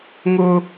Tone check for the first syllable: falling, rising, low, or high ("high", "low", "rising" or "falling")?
high